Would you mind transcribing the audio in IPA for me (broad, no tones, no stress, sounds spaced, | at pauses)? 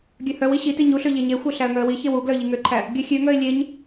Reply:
ɡʲ œ h œ w i ɕ i t i ɲ u ɬ ø ʎ e ɲ e xʷ œ ɬ æ ə̯ ŋ œ ə̯ w i ç e w u ɡ l œ ʎ i ŋ ø ǃʰ æ | ɡʲ œ xʲ ø ŋ œ ɪ̯ lʲ e ɲ